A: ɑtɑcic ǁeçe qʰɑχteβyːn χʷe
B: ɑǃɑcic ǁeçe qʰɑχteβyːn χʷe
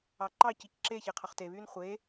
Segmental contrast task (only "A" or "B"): B